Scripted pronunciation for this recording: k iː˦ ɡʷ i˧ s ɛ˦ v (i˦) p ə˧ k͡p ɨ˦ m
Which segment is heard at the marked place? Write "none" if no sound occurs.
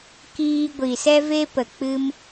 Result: e˦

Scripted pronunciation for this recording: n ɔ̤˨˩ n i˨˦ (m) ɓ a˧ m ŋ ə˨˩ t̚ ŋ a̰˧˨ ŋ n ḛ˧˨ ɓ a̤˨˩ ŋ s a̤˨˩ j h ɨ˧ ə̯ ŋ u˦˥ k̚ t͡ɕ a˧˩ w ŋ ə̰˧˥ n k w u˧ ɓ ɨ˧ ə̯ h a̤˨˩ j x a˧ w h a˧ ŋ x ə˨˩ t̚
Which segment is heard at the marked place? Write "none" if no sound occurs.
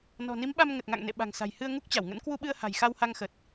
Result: m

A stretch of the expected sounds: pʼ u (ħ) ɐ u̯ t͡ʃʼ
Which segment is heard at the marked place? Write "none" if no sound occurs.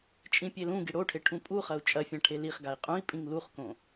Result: χ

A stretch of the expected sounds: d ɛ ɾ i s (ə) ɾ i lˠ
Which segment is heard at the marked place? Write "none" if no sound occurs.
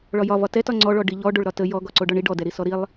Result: ɔ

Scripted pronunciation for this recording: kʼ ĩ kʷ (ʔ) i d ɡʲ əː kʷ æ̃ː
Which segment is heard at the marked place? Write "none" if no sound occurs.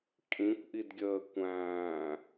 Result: ʔ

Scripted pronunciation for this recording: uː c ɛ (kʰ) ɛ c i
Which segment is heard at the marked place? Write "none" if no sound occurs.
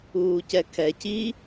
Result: kʰ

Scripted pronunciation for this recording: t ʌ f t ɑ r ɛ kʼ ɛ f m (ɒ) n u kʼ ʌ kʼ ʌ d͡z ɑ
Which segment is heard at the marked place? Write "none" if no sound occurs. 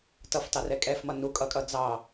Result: ʌ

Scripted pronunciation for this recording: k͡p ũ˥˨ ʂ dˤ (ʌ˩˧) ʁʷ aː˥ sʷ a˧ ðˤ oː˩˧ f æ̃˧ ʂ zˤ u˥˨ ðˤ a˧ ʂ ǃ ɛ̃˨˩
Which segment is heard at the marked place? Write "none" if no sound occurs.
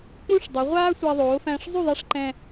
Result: ə˩˧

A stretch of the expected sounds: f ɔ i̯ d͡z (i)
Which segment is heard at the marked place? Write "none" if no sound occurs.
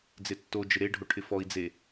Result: e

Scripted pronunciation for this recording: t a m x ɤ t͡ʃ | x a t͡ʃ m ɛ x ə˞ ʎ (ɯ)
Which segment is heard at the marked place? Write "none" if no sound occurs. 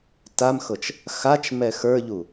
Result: u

